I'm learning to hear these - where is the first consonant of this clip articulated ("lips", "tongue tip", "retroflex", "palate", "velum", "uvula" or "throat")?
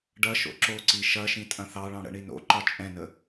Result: retroflex